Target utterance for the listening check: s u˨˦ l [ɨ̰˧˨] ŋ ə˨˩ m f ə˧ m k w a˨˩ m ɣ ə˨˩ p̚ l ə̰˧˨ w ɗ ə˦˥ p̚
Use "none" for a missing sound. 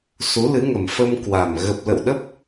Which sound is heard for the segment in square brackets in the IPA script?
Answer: ɨ˨˦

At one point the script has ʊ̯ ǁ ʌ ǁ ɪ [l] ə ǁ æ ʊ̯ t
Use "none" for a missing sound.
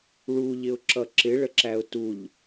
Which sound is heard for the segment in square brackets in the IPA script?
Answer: ɭ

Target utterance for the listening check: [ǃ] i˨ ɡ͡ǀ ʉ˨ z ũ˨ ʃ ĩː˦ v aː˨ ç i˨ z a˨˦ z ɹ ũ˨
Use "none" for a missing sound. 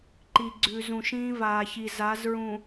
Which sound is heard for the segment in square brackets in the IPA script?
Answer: ǃ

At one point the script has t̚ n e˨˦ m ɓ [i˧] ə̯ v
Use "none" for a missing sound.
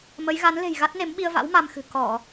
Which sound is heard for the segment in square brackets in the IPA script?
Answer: i˧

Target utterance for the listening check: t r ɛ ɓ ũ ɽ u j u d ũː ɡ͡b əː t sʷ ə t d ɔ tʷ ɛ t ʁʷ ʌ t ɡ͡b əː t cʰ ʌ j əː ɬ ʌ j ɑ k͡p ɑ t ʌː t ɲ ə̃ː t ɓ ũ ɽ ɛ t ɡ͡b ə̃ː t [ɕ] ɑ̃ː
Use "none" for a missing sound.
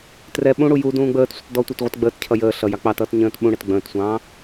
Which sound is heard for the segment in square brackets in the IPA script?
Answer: sʷ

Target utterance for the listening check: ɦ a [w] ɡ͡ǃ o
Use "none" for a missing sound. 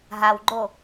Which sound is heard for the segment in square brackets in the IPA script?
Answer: w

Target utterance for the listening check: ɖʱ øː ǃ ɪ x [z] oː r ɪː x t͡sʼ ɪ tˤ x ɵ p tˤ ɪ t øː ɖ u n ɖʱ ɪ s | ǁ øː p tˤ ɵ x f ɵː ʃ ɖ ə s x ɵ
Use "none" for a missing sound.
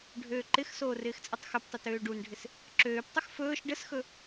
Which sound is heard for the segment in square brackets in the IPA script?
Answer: s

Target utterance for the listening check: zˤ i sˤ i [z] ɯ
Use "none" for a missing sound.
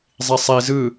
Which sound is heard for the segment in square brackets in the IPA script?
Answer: z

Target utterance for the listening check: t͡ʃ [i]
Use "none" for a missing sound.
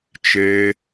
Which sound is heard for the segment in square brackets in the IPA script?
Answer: e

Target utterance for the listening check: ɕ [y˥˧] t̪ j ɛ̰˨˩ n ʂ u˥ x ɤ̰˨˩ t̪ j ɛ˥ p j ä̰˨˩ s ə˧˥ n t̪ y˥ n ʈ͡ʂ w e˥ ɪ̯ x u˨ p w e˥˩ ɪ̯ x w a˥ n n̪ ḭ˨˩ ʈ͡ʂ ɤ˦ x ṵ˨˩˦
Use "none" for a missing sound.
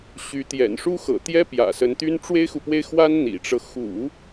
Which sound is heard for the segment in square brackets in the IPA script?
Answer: y˧˥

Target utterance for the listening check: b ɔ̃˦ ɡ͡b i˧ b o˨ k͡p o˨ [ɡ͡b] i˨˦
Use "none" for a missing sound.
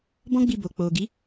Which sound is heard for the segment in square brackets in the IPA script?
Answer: ɡ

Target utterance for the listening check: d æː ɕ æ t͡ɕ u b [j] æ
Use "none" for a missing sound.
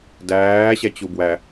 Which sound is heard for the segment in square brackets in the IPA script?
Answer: w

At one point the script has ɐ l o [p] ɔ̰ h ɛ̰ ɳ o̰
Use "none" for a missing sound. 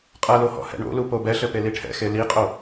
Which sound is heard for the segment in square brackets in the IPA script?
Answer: h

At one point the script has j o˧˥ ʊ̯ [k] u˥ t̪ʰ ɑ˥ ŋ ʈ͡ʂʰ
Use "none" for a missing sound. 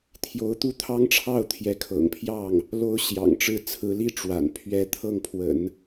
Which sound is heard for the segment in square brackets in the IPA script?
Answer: t̪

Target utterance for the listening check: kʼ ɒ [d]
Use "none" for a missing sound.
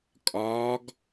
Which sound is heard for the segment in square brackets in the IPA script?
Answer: ɡ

